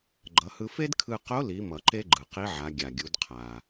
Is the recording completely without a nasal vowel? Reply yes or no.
yes